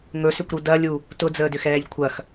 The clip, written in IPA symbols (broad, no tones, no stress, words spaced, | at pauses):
ŋɵsʏkʷɾu dɐlʲu | tʊd͡zəːdʏxɛːʎ kʷʰɐx